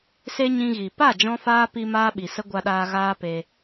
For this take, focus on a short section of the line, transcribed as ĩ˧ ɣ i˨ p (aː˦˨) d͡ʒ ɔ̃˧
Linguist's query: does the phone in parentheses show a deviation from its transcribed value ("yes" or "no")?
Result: yes